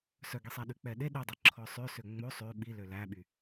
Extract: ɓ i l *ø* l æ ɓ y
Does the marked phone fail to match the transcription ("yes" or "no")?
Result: no